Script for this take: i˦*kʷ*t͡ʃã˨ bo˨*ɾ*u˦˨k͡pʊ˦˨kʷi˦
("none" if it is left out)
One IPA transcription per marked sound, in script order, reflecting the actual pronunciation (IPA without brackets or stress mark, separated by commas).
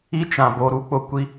none, ɾ